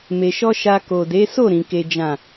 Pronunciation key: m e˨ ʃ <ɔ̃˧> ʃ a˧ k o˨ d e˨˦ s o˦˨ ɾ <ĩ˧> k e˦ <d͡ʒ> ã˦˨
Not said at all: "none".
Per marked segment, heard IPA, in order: ɔ˧, ĩ˨˦, d͡ʒ

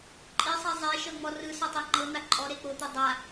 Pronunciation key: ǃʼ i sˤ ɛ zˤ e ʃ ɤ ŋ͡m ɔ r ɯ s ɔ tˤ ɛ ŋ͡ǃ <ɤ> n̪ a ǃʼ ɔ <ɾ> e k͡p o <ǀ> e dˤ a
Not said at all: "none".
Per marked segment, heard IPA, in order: ɤ, ɾ, t̪

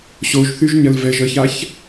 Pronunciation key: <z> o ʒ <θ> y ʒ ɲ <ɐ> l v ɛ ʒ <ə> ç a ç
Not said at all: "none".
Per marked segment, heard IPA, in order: ɕ, θ, ɐ, ə

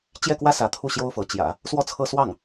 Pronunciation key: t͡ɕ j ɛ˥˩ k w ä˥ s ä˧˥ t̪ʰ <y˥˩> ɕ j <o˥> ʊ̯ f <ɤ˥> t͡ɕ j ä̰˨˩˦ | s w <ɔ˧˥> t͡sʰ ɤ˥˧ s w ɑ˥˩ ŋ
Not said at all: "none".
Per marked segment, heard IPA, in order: u˥˩, o˥, ɤ˧˥, ɔ˥˧

